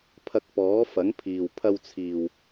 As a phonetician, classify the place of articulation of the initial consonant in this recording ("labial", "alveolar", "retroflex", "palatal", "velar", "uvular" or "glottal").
labial